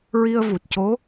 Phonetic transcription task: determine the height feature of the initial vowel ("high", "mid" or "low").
high